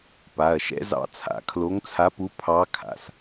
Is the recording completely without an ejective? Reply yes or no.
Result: yes